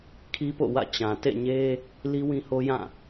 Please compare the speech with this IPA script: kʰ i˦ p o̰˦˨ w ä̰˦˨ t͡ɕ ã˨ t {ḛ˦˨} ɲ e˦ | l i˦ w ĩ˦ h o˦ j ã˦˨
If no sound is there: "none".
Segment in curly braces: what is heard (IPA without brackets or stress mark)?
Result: ḛ˦˨